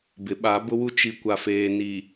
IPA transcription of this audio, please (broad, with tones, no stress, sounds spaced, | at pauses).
b ɪ˨˦ ɓ a˨˦ b ʊ˦ w u˦ t͡ʃ i˨ kʷ a˨ f eː˨ n i˨